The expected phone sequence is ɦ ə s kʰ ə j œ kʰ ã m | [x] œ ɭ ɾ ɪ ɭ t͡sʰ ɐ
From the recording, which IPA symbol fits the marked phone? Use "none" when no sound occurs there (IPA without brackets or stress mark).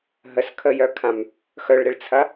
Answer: x